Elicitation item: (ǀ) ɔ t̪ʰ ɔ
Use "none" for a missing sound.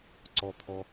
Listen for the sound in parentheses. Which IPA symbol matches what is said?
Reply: ǀ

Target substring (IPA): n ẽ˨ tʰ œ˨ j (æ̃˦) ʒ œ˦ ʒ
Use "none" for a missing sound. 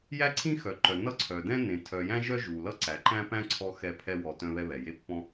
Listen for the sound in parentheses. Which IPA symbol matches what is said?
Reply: æ̃˦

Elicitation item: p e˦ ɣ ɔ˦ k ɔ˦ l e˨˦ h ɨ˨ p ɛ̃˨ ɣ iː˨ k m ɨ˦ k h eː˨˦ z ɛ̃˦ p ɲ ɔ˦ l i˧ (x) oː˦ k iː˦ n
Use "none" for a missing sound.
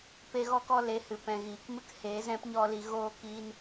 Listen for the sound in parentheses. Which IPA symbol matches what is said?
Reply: ɣ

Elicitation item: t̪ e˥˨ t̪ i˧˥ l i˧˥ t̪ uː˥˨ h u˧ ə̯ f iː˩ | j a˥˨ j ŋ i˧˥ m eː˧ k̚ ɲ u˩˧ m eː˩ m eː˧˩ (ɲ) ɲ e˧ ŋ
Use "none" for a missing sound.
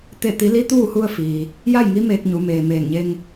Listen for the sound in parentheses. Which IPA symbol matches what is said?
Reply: ŋ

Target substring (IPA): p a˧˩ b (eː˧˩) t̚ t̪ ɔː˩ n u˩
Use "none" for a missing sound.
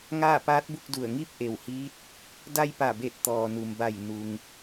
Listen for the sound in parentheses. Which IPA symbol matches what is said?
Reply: e˧˩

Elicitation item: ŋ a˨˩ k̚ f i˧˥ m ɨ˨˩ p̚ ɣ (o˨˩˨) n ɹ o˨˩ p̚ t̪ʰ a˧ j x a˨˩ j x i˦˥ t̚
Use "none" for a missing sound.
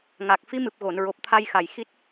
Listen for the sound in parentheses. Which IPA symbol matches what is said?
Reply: o˨˩˨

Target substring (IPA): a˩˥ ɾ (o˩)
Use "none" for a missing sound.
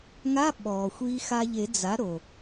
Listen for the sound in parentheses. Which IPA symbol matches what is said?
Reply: o˩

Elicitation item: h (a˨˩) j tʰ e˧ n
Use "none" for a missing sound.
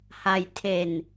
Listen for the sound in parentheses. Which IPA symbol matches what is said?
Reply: a˧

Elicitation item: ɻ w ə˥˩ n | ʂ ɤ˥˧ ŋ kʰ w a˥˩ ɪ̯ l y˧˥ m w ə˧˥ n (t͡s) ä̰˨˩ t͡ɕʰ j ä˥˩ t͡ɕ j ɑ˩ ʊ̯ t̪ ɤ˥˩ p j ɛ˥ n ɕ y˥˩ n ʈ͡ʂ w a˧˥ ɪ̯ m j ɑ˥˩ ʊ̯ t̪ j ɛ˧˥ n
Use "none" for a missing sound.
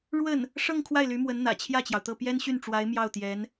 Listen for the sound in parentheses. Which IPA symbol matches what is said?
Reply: n̪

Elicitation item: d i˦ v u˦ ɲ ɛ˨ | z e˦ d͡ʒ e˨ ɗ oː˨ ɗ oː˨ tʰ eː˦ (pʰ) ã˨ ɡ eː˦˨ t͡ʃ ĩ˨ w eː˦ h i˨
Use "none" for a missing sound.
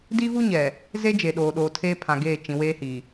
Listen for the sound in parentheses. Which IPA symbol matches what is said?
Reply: pʰ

